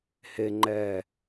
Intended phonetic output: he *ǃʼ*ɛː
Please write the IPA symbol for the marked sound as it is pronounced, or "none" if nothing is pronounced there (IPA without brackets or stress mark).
ŋ͡ǃ